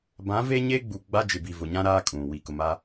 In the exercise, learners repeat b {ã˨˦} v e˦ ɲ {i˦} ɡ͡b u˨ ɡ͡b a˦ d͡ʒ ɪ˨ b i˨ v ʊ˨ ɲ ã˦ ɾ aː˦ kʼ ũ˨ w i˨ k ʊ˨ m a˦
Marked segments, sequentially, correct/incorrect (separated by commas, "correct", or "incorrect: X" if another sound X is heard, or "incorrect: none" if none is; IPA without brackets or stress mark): correct, incorrect: e˦